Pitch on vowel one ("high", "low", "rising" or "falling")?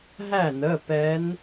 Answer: falling